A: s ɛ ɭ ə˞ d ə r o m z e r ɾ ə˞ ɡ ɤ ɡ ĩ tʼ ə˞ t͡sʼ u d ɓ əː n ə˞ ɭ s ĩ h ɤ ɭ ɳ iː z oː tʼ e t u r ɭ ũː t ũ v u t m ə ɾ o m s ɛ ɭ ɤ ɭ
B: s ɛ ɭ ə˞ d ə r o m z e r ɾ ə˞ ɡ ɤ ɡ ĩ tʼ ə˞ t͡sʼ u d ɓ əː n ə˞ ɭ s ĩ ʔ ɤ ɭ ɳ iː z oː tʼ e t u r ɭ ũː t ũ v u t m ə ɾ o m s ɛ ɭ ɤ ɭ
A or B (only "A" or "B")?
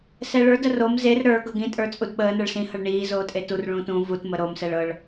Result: A